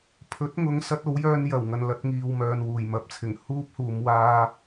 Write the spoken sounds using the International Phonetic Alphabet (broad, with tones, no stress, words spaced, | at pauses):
pʰɵ˨˥t̚ŋʊ˨˧ŋsɐ˧t̚ o˨˥wjœː˧njɐ˨˩wŋɐ˨n lɐ˧t̚ŋiː˨wmœː˨n wuː˨˩jmɐ˨˥p̚t͡sʰɪ˨˩ŋ huː˥p̚huː˨˧m waː˥